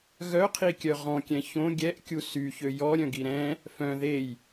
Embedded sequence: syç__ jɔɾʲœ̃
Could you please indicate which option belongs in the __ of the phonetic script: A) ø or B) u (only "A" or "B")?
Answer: A